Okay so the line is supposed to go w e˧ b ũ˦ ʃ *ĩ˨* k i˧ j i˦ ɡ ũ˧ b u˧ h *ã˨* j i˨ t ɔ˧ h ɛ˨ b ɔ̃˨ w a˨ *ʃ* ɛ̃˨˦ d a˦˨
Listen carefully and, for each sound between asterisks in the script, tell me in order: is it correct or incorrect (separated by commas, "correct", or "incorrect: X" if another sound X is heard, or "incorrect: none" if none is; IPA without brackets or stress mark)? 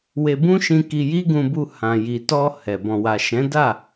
incorrect: ĩ˧, correct, correct